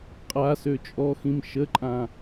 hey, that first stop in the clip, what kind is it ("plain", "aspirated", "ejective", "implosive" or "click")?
ejective